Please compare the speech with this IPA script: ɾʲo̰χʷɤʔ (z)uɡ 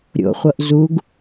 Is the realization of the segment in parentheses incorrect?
no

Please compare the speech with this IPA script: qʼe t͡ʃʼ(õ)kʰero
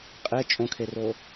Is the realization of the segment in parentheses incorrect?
no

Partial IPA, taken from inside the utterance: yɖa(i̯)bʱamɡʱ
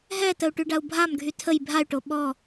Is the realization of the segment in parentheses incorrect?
yes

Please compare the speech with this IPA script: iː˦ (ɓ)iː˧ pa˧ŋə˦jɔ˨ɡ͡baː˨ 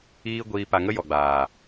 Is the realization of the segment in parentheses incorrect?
yes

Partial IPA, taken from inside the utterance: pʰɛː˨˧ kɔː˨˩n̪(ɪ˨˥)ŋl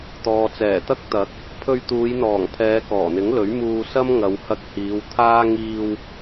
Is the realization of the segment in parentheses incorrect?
no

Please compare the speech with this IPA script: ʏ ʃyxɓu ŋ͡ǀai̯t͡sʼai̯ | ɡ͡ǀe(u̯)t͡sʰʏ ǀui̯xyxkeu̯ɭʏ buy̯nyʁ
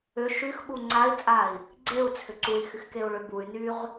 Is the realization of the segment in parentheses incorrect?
no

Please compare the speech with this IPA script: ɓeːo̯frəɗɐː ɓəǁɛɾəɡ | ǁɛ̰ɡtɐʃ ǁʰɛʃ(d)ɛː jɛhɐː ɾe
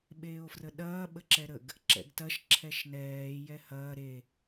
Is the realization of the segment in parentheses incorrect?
yes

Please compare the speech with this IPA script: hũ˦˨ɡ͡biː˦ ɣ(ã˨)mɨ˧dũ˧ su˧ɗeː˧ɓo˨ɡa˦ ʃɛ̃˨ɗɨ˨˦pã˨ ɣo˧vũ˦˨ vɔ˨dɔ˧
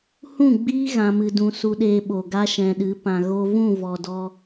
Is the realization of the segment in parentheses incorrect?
yes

